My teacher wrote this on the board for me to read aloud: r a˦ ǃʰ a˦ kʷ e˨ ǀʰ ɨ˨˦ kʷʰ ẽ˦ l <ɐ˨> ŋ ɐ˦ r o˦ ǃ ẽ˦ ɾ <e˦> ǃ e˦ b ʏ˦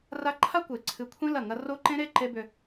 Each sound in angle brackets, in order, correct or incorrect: incorrect: ɐ˦˨, correct

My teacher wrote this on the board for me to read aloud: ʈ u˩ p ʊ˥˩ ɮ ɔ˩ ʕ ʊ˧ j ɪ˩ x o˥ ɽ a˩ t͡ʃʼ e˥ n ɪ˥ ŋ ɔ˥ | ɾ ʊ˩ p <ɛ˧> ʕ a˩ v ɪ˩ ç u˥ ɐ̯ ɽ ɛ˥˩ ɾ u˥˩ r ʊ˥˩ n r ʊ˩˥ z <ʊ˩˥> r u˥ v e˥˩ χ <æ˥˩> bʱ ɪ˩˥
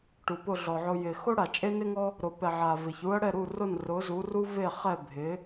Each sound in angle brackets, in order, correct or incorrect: incorrect: ɛ˩, incorrect: u˩˥, incorrect: ɛ˥˩

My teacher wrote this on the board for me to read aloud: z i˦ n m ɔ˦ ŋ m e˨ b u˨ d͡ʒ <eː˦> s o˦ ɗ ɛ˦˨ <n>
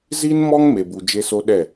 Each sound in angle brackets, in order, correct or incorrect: incorrect: e˦, incorrect: none

